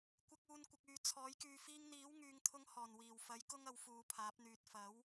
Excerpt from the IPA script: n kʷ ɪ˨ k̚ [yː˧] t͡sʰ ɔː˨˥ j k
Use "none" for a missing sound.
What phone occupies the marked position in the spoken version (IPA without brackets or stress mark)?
yː˨